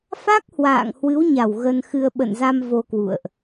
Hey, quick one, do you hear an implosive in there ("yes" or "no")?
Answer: yes